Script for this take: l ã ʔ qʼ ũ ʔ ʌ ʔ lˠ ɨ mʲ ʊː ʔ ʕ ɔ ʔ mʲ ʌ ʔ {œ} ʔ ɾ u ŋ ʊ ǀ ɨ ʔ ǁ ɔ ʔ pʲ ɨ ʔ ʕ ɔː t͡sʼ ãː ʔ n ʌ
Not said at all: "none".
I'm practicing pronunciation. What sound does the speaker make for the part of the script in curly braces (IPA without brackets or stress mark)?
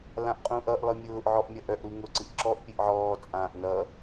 œ